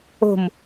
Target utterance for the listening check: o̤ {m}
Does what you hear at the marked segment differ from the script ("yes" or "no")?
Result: no